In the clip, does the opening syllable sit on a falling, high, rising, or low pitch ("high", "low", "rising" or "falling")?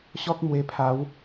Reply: high